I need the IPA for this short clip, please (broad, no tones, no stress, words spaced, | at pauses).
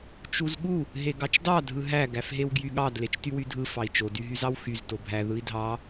t͡ʃuzɠu | ɦeɡɑt͡ʃdɑ dʱɯɦæ ɡæfɦewɡjyɠɑd let͡ʃtywydʱɯ fɑi̯t͡ʃo dyɦyzɑwxyz tobʱæ ðɯi̯dʱɑ